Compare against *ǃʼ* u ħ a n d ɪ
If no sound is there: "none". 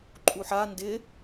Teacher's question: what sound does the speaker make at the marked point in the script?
ǃʼ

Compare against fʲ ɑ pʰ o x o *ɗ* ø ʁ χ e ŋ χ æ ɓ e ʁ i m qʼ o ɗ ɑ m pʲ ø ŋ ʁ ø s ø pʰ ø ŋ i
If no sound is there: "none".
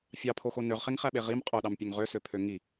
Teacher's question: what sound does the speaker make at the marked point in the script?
n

